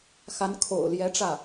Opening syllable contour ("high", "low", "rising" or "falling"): rising